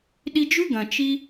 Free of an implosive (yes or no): no